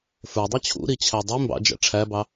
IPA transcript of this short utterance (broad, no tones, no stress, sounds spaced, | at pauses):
f ə˞ dˤ ʌ t͡ɕʰ ṵ ɾ i t͡ɕʰ æ dˤ i m b ɑ̰ d͡ʒ æ̰ ʈ͡ʂʰ æ b ɑ